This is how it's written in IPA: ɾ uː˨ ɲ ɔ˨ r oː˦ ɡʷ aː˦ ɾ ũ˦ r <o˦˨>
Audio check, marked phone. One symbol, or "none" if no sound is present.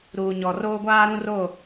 o˦˨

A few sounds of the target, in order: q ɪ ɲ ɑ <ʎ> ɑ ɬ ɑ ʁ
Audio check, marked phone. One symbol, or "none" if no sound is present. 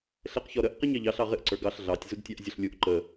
ʎ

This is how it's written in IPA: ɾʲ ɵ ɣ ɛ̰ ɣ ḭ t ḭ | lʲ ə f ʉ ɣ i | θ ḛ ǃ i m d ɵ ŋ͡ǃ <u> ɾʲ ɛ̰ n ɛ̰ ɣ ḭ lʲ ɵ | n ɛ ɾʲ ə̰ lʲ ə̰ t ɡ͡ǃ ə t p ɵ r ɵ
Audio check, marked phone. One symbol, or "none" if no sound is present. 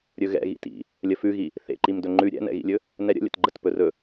ʉ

